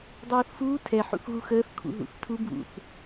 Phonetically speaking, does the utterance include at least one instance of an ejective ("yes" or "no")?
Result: no